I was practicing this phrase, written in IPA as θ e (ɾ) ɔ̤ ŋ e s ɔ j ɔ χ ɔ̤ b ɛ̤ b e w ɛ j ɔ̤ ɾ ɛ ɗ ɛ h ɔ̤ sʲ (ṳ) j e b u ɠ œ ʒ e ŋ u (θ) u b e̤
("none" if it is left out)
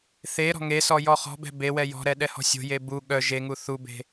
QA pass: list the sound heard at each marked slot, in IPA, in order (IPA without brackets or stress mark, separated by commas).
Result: ɾ, o̤, θ